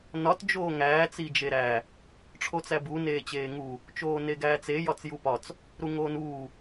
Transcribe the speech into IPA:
nɒt d͡ʒoːŋæː t͡sid͡ʒeɾæ | ʈ͡ʂʰot͡sæbu neːt͡ɕeːŋu | t͡ʃoːneɡæːt͡se jɒt͡sjupɒt͡s | ɾuŋoːnuː

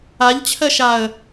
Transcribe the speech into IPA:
aʎt͡ɕʰɜʃaə̯

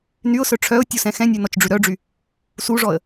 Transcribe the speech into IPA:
nyʊ̯sœ ʈ͡ʂʰœʊ̯ tʲusɛ̃xɛ̃nʲʉ nɔt͡ʃɖ͡ʐʉɾœɖ͡ʐy | suʐɔə̯

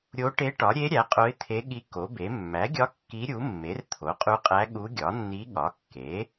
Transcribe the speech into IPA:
ɾʲo˧˥ʈe˧˥ʈɒ˩˥ ɾʲe˧˥ ɾʲæ˩˥qʼo˧˥ɪ̯t̪ʰe˧˥ɠi˧˥ ko˩˥be˩˥ mːæ˩˥ɡʲɒ˧˥ kːi˧˥ɾʲu˩˥ mːe˩˥rt̪ʰo˩˥qʼu˧˥qʼæ˧˥ ɠu˧˥ɡʲɒ˩˥nːi˧˥ ɠɒ˩˥kːe˩˥

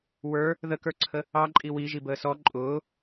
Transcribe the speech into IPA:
wə˞ | ðəkə˞ǀʰə | ɑǃʼi wiʒi bəːsɔ ǃʼʊː

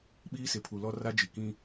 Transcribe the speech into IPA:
ɓiː˦sɪ˨pʰu˨lɔ˦ ra˦d͡ʒi˨ kĩ˦

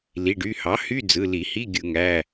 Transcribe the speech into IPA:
li˩˧˩ɖy˩˧˩ hɑ˩˥ hy˧˥˧d͡zɯ˩˧˩li˧˩˧hi˧˥˧ ɡʲɯ˧˩˧ŋæ˩˧˩

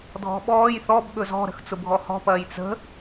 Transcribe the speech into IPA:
dʱɔ̤ɓɔːj θɔb ɠɵzɔ̤ ɾə̤xt͡sʊbʱɔhɔ̤ pɐːjt͡sə̤

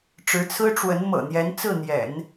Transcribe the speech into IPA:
ʈ͡ʂɻ̩˧˥t͡sʰɹ̩˥ ʈ͡ʂwə˧˥n mɤ̰˨˩n̪jɛ˧˥n t͡sɹ̩˥˩n̪jɛ̰˨˩˦n

